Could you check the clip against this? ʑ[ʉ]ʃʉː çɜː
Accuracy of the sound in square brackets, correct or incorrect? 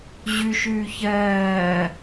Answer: correct